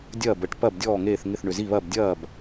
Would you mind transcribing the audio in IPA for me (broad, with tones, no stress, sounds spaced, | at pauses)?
dʲ ɐː˥˩ b ə˧˥ ʈ p ɐ˥˩ b dʲ ɔː˥˩ ŋ eː˥˩ θ ŋ ɪ˥˩ θ ɳ ʏ˨˩ z i˥˩ β ɐ˥˩ b dʲ ɐː˥˩ b